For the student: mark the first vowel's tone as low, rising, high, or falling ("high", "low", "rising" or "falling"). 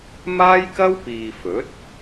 high